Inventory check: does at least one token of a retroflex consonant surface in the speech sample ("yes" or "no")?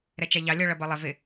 yes